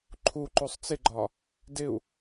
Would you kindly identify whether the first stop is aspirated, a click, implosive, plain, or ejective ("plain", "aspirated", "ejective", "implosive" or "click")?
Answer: click